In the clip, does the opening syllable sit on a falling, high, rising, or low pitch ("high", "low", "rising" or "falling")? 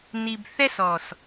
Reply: low